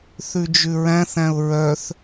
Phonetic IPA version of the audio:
θ ʉ d͡ʒ ʉ ɹ æ̃ θ æ̃ ʊ̯ ɹ œ θ

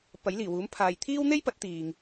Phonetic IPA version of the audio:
p ɐ˨˥ j l iː˨˩ w uː˨˥ m pʰ aː˨ j t̪ʰ iː˥ w n̪ e˥ j p ɐ˨˥ t̚ t̪ iː˨ ŋ

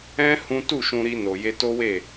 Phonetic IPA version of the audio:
ɛ̃˦ h ũ˦ t u˦˨ ʃ ũ˧ ɾ i˧ n o˨ j e˧ t o˦ w e˦˨

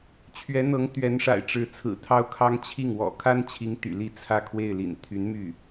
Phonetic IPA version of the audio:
t͡ɕʰ ɥ ɛ˧˥ n̪ ɤ˧˥ ŋ t̪ ɥ ɛ˧˥ n ʂ a̰˨˩ ɪ̯ ʈ͡ʂ ɻ̩˧˥ t͡sʰ ɹ̩˨˩ t̪ʰ ɑ˥ ʊ̯ kʰ ɑ˥ ŋ t͡ɕʰ i˥˩ ŋ w ɔ̰˨˩ kʰ a˥ n t͡ɕʰ i˧˥ ŋ t̪ y̰˨˩ l i˥˧ t͡sʰ ä˥˧ kʰ w e˥˩ ɪ̯ l ḭ˨˩ n t̪ʰ y˧˥ n m y˥˩

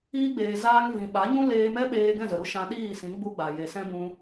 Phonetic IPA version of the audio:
iː˧ ɡ͡b eː˨ z aː˧ ŋ v ĩ˨ ɓ a˨˦ ɲ ũ˦ l eː˧ m ɛ˦ ɓ eː˧ ɡ ɛ̃˦˨ z ə˨ ɾ u˦ ʃ ã˧ ɗ iː˦˨ s ĩ˨˦ ɡ͡b u˧ ɡ͡b a˨ j e˨ s ɛ̃˦ b ũ˧

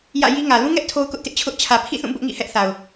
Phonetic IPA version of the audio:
j ä̰˦˨ j i˦ ŋ ä˨ l ũ˦ ŋ ɛ˦ ʔ tʰ o˦ ʊ̯ k ʊ˦ ʔ t ɪ˦ ʔ t͡ɕʰ ʊ˦ ʔ t͡ɕʰ ä˨ pʰ ḭ˦˨ θ ũ˦˨ b ʊ˦ ʔ ŋ ḭ˦˨ h ɛ˦ ʔ θ a˨ ʊ̯

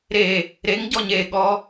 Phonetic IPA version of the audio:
ɾ e | ɾ e ŋ ɟ ɔ ɲ e ɠ ɔ

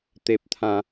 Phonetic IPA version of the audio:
t̪ e˦ p̚ t̪ʰ ã˦

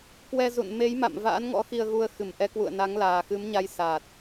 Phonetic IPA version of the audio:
k w ɛ˧ z ṵ˧˨ n m e˨˦ j m a̰˧˨ m v a̰ː˧˥ n ŋ ɔ̰˧˥ x i˧ ə̯ ɣ u˧ ə̯ x ɨ˧˩ m ʔ ɛ˨˦ k w ṵ˧˨ ə̯ n a˨˦ ŋ l aː˨˩ x ɨ˨˦ m ɲ a˧ j s aː˨˩ t̚

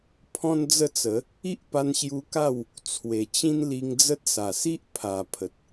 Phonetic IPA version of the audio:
pʰ ɔ̃˦ n d͡z ə˦ t͡s ə˨˦ | i˦ ʔ p a˧ n ɕ j u˧ k a˥˧ w | t͡sʰ w e˨˩ t͡ɕ ĩ˦ n l i˧ ŋ d͡z ə˦ t̚ s a˨˩ s i˦ ʔ pʰ a˨˩ pʰ ə˨ t̚

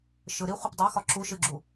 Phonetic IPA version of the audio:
ʃ ɯ ɾ i χʷ ɯ p dˤ e x ɒ ǁ u ʃ ɨ ɡ͡ǁ u

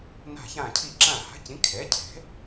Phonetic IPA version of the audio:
n a̤˧˩ ç ã˧˩ cʰ i˧˩ ǁ ã˧˩ h a̤˩˥ c ĩ˩˥ kʰ ɛ˩˥ cʰ ɛ̤˩˥

